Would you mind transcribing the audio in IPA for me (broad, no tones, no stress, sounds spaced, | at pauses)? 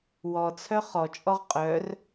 w ɔ t͡sʰ œ χ ɔ t͡ʃʼ ɔ ʁ qʼ œ r